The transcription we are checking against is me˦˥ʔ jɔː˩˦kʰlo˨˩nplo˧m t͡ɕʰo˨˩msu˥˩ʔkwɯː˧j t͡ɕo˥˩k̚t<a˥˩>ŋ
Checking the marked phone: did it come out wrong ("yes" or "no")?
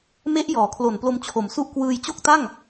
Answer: no